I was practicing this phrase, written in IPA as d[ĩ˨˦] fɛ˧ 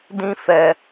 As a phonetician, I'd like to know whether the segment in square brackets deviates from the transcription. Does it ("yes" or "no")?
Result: yes